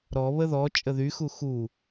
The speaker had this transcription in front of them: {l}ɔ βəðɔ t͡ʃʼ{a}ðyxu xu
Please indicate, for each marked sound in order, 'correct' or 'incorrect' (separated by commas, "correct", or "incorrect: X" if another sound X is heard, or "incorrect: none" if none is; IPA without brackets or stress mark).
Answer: incorrect: ɾ, incorrect: ə